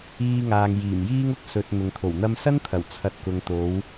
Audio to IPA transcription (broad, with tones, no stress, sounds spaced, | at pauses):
iː˧ ŋ aː˨ ŋ j iː˨˩ m j iː˥ ŋ ʊ˥ k̚ s ɵ˨ t̚ n̪ ʊ˨ ŋ t̪ʰ o˨˩ w n̪ ɐ˧ m s ɐ˥ n t̪ʰ ɐ˨˩ w t͡sʰ ɐ˧ t̚ k ʊ˨ ŋ t̪ o˨˥ w